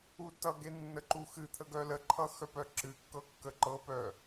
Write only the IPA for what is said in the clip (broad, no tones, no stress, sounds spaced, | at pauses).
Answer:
u t ʌ ɡ e nː ə ǃ u x ɨ t̪ʰ ə ɡ œ l ə ǃʰ ʌ x œ p œ ǁ ɨ kː ɤ kː ə ǃ ɤ p œ